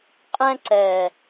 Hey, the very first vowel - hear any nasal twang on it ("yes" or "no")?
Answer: yes